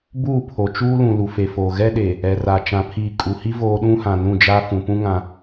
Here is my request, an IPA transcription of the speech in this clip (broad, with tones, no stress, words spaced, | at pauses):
buː˦˨pʰo˨t͡ʃuː˦lũ˨ lu˨fe˨foː˨ ɣɛ˦ɗeː˨ | ɛ˨ra˨ t͡ʃã˨pʰiː˨ kʼu˨hi˦ voː˦ ɗũ˦hã˨nũ˦˨d͡ʒa˦ fũ˨pũ˦ ŋã˦